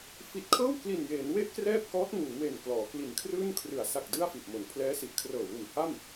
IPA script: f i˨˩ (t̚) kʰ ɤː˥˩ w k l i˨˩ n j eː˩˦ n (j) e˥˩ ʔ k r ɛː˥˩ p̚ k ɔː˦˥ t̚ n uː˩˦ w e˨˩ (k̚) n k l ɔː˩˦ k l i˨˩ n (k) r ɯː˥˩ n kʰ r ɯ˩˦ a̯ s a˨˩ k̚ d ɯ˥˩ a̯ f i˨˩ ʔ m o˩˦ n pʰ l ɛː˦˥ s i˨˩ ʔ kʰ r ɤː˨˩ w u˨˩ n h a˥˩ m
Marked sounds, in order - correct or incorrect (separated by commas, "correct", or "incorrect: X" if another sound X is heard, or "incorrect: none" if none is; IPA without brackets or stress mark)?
correct, incorrect: w, incorrect: none, incorrect: kʰ